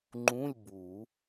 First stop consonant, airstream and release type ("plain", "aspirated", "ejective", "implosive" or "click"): click